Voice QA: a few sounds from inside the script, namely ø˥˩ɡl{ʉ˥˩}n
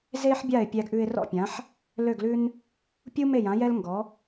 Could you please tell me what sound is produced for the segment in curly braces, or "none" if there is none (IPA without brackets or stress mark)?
ʉ˥